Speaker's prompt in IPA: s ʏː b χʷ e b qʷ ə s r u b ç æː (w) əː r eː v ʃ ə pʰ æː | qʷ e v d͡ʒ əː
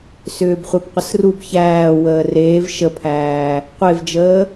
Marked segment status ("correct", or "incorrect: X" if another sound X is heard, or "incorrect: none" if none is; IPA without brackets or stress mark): correct